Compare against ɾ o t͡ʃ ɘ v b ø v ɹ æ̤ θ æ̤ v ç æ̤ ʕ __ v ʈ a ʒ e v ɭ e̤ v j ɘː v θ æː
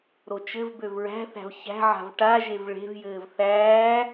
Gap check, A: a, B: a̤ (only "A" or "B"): B